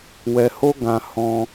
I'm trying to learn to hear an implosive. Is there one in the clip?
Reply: no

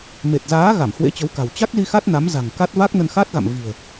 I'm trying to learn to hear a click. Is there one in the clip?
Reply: no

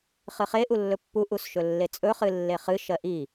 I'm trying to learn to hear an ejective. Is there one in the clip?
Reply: yes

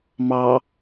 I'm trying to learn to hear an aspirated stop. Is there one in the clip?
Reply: no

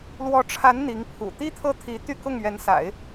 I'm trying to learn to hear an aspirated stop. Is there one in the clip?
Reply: yes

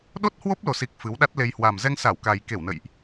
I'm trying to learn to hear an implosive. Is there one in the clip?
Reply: yes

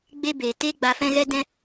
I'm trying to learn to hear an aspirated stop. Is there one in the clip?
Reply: no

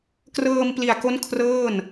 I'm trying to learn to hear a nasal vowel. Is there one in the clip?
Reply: no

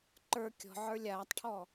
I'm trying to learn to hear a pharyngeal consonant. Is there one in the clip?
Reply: yes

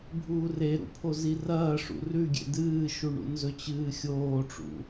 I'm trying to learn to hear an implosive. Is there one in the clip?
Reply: no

